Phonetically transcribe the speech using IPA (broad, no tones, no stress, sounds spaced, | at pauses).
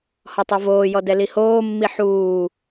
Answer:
h ɔ tˤ o v oː j ɔ d ɛ l i h oː mː i ħ uː